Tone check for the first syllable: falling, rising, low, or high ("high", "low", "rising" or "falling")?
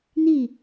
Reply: falling